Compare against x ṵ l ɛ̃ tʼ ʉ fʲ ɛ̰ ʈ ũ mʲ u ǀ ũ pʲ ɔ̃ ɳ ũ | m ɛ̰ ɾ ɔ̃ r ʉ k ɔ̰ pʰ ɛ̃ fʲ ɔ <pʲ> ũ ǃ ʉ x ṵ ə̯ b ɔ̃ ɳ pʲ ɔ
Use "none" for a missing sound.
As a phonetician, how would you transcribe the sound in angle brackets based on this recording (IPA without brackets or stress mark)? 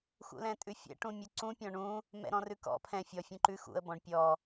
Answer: fʲ